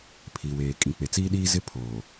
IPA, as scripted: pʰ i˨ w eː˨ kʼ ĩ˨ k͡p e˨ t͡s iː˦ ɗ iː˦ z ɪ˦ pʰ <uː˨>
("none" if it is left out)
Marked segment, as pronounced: oː˨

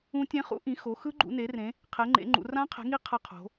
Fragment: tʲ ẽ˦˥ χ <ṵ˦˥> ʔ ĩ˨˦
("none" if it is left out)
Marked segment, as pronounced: ṵ˦˥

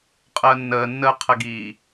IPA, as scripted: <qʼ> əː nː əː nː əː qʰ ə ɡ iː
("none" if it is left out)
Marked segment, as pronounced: qʼ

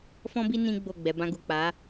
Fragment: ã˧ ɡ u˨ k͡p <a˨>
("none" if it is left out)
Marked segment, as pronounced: a˨˦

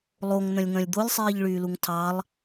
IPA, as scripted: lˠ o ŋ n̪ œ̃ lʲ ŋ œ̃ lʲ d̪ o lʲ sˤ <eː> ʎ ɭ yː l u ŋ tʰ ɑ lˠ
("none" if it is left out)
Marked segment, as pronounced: iː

